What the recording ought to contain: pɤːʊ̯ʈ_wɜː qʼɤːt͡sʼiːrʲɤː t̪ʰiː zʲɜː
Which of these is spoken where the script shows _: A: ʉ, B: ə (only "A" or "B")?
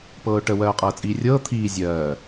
B